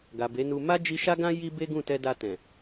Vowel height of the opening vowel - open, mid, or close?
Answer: open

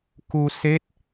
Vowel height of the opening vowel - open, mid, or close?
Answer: close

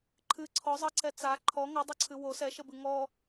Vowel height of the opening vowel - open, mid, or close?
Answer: close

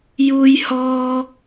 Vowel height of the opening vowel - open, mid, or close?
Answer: close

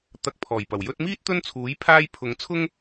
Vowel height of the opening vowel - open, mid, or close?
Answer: open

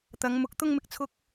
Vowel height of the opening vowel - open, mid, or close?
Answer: open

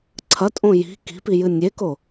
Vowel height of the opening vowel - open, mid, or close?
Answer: open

